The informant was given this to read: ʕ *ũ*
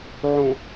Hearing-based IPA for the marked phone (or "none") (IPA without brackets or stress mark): ũ